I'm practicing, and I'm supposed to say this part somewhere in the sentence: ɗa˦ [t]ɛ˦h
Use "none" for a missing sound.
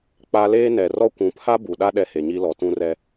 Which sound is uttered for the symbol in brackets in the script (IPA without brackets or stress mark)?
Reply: ɗ